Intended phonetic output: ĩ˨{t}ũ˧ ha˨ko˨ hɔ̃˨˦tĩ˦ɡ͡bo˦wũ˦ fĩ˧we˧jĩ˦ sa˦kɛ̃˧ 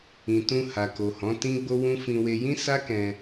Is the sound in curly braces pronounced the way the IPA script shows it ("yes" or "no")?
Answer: yes